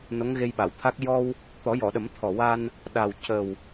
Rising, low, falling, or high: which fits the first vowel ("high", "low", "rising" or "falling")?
rising